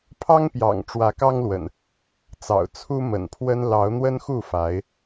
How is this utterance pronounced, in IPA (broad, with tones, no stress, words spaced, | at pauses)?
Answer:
pʰɑ˦ŋpjɑ̰˨˩ŋ ʈ͡ʂwä˨˦kɑ˦ŋlwə̰˨˩n | t͡sɑ̰˨˩ʊ̯ t͡sʰu˦mə̰˨˩npʰwə˦n lɑ˨˦ʊ̯n̪wə˦nxu˥˨fa˨˦ɪ̯